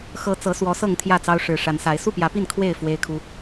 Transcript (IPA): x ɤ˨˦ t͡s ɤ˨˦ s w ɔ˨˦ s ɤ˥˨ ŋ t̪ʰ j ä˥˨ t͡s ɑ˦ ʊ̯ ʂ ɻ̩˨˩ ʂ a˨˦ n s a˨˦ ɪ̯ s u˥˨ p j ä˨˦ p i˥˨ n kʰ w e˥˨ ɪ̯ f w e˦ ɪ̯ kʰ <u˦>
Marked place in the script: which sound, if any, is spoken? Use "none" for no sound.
u˦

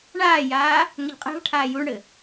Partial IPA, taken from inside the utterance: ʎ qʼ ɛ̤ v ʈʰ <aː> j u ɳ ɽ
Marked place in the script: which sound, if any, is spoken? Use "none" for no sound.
aː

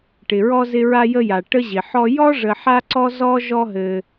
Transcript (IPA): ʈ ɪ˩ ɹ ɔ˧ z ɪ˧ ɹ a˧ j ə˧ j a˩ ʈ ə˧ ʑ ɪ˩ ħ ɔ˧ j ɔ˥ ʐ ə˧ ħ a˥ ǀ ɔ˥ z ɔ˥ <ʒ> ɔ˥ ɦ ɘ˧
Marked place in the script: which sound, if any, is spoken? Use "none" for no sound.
ʒ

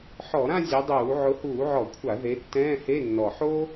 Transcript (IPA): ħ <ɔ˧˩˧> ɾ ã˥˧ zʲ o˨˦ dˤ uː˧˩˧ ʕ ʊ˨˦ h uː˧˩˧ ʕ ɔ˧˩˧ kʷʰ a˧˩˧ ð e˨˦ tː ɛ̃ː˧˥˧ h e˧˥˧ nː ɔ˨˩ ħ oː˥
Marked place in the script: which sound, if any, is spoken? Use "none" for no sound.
ɔ˧˩˧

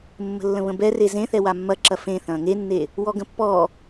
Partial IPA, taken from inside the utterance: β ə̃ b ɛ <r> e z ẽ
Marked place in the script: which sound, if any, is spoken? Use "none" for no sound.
r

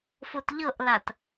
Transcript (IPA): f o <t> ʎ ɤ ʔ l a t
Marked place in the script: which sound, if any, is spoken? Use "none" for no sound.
t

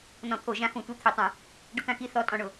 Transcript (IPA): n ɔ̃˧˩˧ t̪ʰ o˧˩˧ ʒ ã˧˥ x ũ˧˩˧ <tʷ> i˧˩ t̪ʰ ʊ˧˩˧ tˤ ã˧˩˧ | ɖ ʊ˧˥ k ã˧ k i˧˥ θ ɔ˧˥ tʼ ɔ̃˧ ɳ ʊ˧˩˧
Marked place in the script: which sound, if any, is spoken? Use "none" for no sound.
tʷ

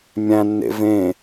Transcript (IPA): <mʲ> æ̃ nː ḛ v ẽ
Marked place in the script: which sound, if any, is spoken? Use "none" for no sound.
mʲ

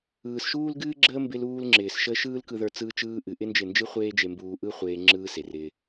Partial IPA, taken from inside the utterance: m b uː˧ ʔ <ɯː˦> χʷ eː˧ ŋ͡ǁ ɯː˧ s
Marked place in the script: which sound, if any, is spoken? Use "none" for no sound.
ɯ˦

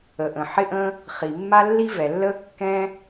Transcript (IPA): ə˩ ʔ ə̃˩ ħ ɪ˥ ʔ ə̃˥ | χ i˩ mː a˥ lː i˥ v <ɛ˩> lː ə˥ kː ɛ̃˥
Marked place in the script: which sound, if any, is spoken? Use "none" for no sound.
ɛ˩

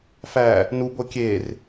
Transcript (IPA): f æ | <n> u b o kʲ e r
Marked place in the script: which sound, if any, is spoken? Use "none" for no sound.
n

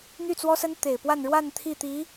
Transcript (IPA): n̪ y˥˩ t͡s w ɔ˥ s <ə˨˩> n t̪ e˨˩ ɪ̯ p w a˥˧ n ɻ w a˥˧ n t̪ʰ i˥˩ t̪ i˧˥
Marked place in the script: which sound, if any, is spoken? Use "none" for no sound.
ə˥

